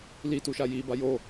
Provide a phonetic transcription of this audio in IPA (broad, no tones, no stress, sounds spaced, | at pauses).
l i t u ʃ a j i b a j o